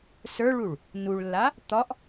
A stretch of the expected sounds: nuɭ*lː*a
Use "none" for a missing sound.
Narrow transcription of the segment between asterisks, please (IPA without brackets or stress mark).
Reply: lː